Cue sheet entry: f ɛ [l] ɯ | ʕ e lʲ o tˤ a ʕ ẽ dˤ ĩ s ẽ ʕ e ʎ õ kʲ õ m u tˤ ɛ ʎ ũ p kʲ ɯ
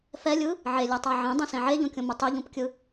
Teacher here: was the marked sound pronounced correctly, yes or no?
no